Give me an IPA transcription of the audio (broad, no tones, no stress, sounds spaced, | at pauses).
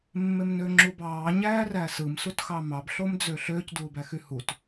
mː e m n ø ŋ͡ǁ u b ɑː ɲ æː r æ s ɯ m s u t x ɑ m ɑ b ɬ o m d͡z ø ɬ ø c d uː b æ x y h u t